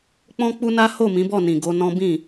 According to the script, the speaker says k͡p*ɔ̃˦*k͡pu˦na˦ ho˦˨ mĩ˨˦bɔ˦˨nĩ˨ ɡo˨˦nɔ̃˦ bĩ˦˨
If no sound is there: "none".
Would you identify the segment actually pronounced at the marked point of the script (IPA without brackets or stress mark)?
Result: ɔ̃˦